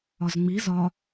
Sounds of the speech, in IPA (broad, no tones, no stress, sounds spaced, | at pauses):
ɒ z ŋ͡m i z ɒ